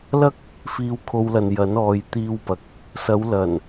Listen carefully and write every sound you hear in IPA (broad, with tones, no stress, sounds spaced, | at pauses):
l ɐ˥ k̚ | f iː˧ w kʰ o˧ w l ɐ˨ n j ɐ˨˥ n ɔː˨˧ j t̪ iː˧ w p ɐ˨ k̚ | s ɐ˨˧ w l ɐ˨˩ n